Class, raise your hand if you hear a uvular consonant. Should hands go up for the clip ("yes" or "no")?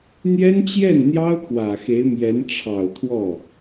no